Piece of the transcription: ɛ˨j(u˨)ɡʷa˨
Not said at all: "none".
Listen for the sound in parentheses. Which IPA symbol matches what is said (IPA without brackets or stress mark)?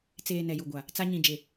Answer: u˨